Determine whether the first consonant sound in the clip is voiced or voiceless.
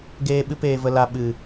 voiced